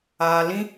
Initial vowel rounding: unrounded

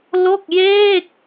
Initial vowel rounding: rounded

